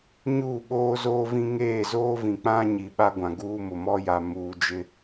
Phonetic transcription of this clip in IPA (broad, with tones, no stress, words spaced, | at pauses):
ɲuː˦˨ɓoː˦zoː˦vĩ˦ ŋeː˦˨zoː˦vĩ˨k͡pã˦ ɲi˨ɓa˦ ɡʷã˨ɡuː˦mʊ˨ mɔ˦ ja˨muː˨ d͡ʒɪ˦